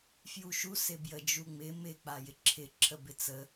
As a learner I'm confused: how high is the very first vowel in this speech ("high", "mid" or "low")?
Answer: high